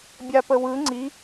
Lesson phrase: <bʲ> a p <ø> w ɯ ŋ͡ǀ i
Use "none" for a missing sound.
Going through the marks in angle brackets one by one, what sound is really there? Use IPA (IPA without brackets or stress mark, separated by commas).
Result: bʲ, ə